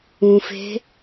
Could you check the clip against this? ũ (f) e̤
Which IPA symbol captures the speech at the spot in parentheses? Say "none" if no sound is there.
f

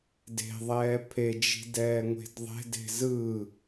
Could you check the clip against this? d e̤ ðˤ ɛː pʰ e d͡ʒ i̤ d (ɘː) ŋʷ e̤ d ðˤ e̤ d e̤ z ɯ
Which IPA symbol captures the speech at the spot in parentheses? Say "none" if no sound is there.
ɛː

